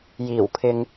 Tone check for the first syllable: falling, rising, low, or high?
low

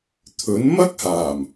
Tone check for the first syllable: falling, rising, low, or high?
rising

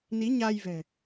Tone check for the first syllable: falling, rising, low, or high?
rising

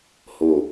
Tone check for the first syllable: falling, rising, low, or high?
low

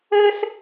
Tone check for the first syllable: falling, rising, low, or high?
high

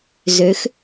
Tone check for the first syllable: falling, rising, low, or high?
rising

